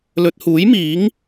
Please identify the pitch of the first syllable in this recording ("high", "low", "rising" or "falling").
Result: low